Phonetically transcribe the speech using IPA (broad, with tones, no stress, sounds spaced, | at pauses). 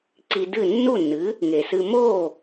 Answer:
ǀ i˧ d ɨ˥˩ nː u˥˩ nː ɨ˩˥ | ŋ e˩ s ɨ˧ m o˥˩